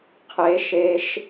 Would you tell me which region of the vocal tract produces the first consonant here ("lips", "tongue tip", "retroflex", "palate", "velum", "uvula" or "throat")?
uvula